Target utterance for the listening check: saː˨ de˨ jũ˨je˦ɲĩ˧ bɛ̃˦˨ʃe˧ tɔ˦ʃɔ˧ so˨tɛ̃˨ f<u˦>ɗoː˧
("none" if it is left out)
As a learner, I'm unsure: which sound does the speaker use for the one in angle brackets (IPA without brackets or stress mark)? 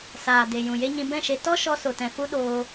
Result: u˦